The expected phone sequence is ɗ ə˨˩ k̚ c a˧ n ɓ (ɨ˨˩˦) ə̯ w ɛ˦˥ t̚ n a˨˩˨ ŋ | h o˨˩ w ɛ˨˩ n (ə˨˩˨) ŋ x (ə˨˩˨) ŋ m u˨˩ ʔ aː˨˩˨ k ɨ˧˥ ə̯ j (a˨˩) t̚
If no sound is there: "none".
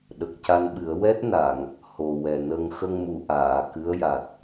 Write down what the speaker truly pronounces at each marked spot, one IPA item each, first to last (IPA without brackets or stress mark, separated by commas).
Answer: ɨ˨˩˦, ə˧, ə˧, a˨˩